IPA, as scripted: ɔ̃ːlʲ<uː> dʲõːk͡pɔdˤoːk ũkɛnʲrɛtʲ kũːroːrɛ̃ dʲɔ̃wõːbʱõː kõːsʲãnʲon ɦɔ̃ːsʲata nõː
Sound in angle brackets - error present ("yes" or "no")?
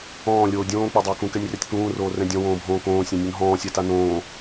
yes